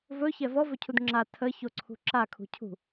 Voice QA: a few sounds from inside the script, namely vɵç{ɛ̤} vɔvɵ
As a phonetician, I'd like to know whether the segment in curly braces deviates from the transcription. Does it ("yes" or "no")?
yes